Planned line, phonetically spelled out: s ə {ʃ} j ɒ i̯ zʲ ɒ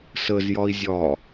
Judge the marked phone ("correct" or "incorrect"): incorrect